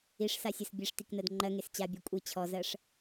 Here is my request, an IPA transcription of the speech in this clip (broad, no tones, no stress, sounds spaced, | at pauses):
i ʂ s a sʲ ʌ s bʲ e ʂ t i k n ɜ d ŋ͡ǃ ɜ ŋ e s t͡ɕ a bʲ ɛ kʷʼ i t͡ɕʰ ɔ z ɜ ʂ